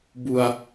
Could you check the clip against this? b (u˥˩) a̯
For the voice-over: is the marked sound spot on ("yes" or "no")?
no